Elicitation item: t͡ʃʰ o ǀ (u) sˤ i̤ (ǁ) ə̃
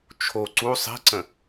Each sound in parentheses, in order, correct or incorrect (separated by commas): correct, incorrect